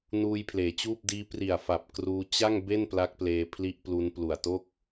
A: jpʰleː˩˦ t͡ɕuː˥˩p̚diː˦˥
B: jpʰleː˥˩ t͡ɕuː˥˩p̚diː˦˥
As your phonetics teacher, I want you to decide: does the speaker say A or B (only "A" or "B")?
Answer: A